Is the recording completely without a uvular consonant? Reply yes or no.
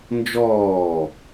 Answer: yes